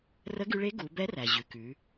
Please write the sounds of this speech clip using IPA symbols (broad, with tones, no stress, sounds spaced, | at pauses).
r ə˧˥ ɡ y˧ ɭ e˧˥ ɡ u˩˧ b ɛ˧˥ r æ˩ ʑ ʉ˩ k ʉ˩˧